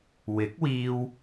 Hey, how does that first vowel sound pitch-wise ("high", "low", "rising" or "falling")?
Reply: rising